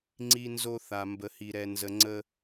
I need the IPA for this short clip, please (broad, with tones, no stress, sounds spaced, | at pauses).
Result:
ŋ͡ǀ i˦ n z o˦ θ a˨ m b ə˨ h i˨ ɾ ɛ˨ n z ə˨ ŋ͡ǀ ə˦